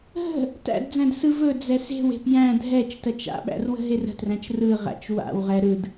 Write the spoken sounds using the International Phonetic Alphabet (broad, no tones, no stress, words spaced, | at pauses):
ɦə̤ | tæ̰dd͡zæ̃d sɯv ɵ d͡zɛse̤we̤p jæ̃ dʱɛt͡ʃ tɜt͡ʃa̰ɓæ̰r wə̤ɦerə̤træ̃t͡ʃ rɯʁæ̰t͡ʃ wa̰wʁɛ ɾɯd